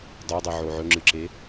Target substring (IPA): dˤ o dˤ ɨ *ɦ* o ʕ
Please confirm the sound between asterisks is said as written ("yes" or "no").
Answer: no